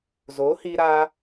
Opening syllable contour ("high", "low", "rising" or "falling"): rising